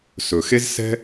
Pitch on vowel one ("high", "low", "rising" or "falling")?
low